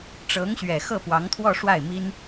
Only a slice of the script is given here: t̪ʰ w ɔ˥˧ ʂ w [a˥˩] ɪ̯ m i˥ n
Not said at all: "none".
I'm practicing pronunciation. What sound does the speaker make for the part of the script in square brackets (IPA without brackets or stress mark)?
a˥˩